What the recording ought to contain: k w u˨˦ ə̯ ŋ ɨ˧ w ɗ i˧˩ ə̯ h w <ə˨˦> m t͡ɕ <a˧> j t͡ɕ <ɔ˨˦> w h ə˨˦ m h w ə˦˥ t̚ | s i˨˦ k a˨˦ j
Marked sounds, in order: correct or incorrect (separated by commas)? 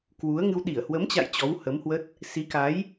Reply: correct, incorrect, correct